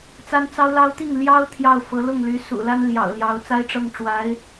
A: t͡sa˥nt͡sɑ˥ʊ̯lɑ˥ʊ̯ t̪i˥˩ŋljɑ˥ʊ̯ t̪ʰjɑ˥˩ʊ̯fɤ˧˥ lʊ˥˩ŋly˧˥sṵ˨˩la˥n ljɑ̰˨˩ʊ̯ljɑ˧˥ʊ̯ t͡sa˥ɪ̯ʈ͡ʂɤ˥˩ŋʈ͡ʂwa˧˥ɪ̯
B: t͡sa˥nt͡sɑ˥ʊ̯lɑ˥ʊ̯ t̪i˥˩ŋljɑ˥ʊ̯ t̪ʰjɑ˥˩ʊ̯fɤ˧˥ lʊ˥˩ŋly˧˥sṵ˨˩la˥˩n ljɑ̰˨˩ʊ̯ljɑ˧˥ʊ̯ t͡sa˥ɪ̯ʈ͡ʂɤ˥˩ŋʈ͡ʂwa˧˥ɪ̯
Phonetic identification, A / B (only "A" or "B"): A